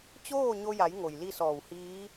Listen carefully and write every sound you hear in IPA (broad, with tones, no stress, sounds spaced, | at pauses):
t͡ɕ oː˥˨ ɲ o˧ j a˩˧ j ŋ o˩ j l i˥˨ s ɔː˧˩ w h iː˧˥